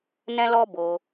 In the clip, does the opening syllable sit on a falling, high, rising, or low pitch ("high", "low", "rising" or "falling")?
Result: high